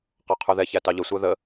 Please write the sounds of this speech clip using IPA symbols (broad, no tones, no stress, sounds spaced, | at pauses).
q ɑ qʰ ʉ ð ɛ ç æ t ɑ ʎ ə sʷ æ ð ə